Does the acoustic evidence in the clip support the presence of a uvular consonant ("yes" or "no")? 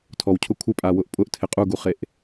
yes